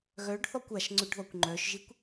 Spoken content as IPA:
ɣœɖθɔkʷ aʃ ŋ͡ǀʏɖðɔkʷŋ͡ǃœʃʒikʷ

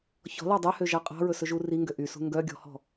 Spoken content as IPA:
çɔ̤lɑ dˤœhøʒɑ qʼɑ̤ɹɵsɵʒu riŋɡø ʔysṳ ŋɡœɡʲɔ̤hɔ̤

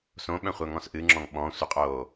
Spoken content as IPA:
sõɓœ̃χʷœŋɔ̃s ʔɨŋ͡ǁɔ̃ŋ ɓɔ̃sʷɪqʼoː

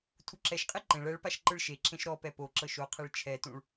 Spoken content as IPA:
tʰuǁɛʃqʼe ǃẽɭ ɛɭpaʃ ǃɯɭʃeǁẽʃ ɾɔpɛ poǁɤʃ oqʰeɭ t͡ʃʰɛtũɭ

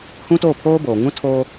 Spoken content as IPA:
hũ˦toː˦˨pʰoː˦boː˨ ŋũ˦tʰoː˦

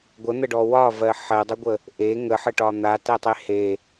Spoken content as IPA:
ɡʷən̪əɖɔ wɒvɜ ħɜdˤəɡʷə | ʔe ŋəħəʈɒ n̪atɜtˤe he

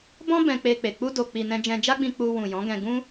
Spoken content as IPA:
bɔ̃˦ bɛ̃˧k͡pe˧k͡pe˨ k͡pu˧do˨k͡pi˨ nɛ̃˧d͡ʒɛ̃˧d͡ʒa˦ɡ͡bĩ˧ k͡pu˧wũ˨ jɔ̃˨˦ɡɛ̃˧ɡũ˦

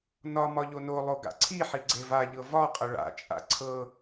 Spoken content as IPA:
nɒ mɒʎonolˠo ɡa̰ǀʰiħi ɡ͡ǀevaʎɤ vɒqʼə ɭa̰t͡ʃʼa̰ ǀʰɤ

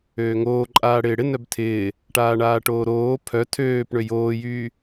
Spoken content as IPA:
øːŋoːǃʼaː ɽɪːɽɪ nœbtʰɪː | ʈaːɳaːʈoːɾoː pʰœ tʰøːpɳø joːjyː

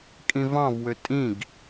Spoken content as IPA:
kʼĩvɑ̃vwø tʼĩɡ

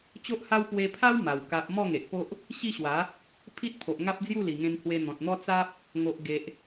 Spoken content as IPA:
t͡ɕo˦ʔha˦w pwe˧pʰa˦w ma˨˩w ka˨p̚ mɔ˥˧ŋe˨ʔpo˦ʔ | ɕi˥˧ɕwa˨˦ | pʰi˦t̚pʰo˨ʔŋa˦p̚ d͡zju˥˧li˨˩ŋẽ˧n hwe˧n̪ɔ̃˨t̚n̪ɔ˦ t͡sa˦p̚ | ŋo˨ʔɡe˨ʔ

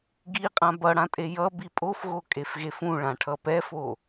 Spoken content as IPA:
ɡiqʼã bʌɽãtʼe jʌ bipʼofɣo kʼefɣefũ ɭãʈʰʌpɛfo

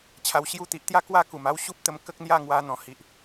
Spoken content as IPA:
t͡ɕʰa˨˩wɕju˧ t̪i˨ʔt̪ja˦ kwa˦ku˨˩ma˥˧w ɕu˦p̚t̪ə˧m kə˦k̚n̪ja˥˧ ŋwa˧n̪ɔ̃˨˩hi˨ʔ

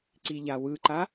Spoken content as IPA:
ǀiʎawɯǃa

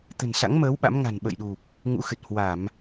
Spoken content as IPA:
t̪ə̤˨˩nsa̰˧˥ŋməː˨˦w ɓa̰˧˥mŋa̤˨˩n ɓə̰˧˨jɗu˨˩p̚ | ŋṵ˧˥xɨ˨˩t̚ hwa˧˩˨m

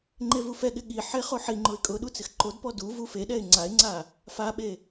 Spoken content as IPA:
ŋ͡ǃevufɛɠɪ ɠiħe χoħiŋ͡ǃʊɪ̯ kʼʊɗu t͡sɪxǃodpɔ duvu feɗɛɪ̯ ŋ͡ǀaɪ̯ŋ͡ǀa | faɓe

